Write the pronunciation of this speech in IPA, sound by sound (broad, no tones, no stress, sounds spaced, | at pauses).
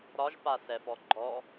ɾ ɒ ʒ p a s ɛ f ɔ ɡ͡ǃ ɔ